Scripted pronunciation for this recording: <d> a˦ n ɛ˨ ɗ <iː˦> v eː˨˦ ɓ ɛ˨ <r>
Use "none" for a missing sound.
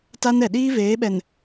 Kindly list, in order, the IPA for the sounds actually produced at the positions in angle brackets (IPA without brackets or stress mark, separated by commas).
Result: t, iː˦, n